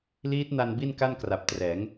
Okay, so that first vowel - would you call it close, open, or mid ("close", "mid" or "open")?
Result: close